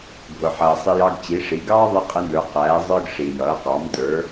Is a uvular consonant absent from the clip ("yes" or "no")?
no